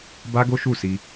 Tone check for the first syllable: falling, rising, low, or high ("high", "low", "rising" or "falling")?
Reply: high